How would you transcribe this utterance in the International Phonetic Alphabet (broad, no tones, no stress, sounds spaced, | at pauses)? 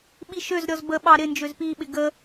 ɓ i ʃ ø z ɾʲ ɔ z b ə ɓ ɑ ɾ ɪ n d͡ʒ ø z p i ɓ ɪ ɡ ə